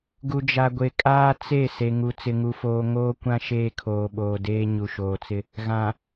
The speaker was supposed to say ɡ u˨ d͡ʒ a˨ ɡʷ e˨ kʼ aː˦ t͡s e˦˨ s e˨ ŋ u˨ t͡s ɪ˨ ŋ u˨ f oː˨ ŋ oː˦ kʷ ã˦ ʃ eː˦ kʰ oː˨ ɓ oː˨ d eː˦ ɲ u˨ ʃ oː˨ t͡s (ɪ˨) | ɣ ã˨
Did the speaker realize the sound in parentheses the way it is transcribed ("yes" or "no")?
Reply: no